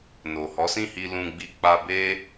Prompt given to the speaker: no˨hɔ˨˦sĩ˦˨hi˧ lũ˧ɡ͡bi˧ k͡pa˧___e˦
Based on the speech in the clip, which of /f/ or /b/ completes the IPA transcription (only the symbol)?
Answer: b